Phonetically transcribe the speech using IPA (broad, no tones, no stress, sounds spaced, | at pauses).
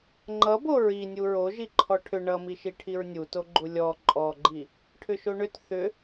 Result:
ŋ͡ǃ ʌ b o ɹ i nʲ u ɹ o ʒ i ǃʰ ɔ ʈʰ ʏ ɳ ʌ m i ʃ i ʈʰ i ɹ nʲ u t o ɡ͡ǃ u lʲ ɔ ǃʼ ɔ ɡ͡ǃ i | ʈʰ ʏ ʃ o ɳ ʏ t θ ʏ